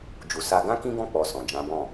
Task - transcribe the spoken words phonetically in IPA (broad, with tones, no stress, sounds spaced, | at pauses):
d͡ʒ u˨ s a˧ ɡ ã˦ k ĩ˦ ɡ ɔ̃˦˨ k͡p ɔ˨ s ɔ̃˨ d͡ʒ ã˨˦ b ɔ̃˦˨